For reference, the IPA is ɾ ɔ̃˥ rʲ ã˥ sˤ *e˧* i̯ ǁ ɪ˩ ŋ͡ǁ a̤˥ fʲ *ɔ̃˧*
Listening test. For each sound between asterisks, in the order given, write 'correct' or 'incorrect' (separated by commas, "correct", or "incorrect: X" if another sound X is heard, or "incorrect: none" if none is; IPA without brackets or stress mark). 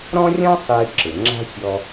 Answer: correct, incorrect: ɔ˧